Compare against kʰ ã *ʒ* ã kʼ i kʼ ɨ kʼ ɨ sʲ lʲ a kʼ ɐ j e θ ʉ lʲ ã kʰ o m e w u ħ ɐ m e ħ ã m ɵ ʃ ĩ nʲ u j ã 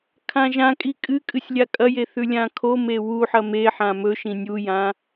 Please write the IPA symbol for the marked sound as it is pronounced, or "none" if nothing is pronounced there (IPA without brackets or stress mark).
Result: ʒ